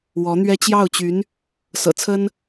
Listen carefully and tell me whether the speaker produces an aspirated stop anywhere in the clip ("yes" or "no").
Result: yes